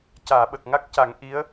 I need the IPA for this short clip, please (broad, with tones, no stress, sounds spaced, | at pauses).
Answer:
c aː˨˩˨ ɓ ə˨˩ k̚ ŋ a˦˥ k̚ c a˨˩˦ ŋ ʔ i˧˥ ə̯